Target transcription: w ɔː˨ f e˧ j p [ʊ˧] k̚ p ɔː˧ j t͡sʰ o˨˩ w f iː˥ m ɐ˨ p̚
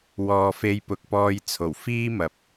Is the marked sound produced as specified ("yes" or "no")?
no